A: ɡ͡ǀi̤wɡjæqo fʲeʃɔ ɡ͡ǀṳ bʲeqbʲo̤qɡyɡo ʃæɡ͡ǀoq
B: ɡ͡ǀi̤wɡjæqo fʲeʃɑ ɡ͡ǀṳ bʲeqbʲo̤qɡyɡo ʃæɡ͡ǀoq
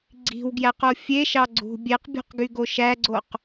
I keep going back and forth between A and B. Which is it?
B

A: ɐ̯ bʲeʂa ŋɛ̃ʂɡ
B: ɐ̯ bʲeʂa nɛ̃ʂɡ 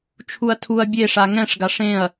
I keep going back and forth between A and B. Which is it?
A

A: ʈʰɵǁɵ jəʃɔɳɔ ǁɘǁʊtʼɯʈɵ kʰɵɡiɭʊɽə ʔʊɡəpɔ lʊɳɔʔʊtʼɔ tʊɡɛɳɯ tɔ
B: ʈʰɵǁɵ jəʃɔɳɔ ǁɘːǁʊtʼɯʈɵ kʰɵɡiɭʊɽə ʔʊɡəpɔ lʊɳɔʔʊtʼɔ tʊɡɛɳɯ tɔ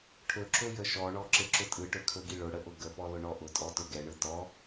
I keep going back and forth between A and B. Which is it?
A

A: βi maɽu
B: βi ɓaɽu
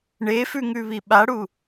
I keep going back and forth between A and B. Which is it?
B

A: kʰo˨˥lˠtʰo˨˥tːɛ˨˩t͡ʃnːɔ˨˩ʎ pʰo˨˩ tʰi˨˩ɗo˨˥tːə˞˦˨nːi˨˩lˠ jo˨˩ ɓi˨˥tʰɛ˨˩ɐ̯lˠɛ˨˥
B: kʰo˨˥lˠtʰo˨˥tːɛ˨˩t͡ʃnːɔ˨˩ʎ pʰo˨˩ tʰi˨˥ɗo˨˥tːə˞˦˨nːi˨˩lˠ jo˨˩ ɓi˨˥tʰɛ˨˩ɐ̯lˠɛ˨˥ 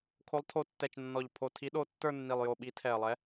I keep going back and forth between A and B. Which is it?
B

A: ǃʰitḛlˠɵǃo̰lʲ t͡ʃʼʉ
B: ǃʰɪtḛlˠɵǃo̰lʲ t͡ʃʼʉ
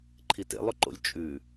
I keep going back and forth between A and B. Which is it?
A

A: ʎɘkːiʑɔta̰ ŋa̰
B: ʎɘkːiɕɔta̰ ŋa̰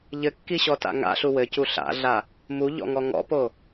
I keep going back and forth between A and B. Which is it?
B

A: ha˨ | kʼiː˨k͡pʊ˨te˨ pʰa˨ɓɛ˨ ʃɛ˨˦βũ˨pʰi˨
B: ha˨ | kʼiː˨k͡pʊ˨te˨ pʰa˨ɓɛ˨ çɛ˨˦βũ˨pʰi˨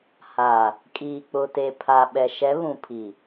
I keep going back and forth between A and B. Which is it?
A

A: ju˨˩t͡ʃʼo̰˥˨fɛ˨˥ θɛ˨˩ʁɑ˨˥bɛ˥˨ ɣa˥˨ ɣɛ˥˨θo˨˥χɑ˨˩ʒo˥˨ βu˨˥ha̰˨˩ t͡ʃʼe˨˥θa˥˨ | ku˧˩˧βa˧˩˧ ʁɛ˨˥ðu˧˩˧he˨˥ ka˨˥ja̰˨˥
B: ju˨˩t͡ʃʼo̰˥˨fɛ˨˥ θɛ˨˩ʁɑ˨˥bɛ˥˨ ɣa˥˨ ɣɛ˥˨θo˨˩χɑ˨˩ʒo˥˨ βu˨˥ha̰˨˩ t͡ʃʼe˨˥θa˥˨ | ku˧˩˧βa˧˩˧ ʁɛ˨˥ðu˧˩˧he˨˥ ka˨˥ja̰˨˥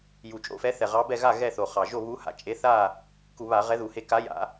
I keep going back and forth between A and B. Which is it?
B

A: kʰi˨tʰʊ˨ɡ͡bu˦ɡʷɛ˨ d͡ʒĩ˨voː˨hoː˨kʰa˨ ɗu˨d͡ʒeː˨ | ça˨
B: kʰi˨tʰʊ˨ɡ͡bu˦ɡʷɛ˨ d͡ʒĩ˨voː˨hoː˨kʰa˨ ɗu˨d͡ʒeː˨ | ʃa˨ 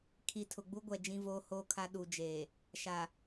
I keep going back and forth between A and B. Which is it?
B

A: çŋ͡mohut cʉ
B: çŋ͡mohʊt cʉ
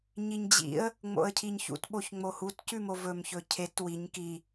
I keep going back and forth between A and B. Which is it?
A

